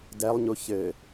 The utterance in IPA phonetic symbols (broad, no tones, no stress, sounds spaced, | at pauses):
d ɛ lˠ ɲ u ç ɘ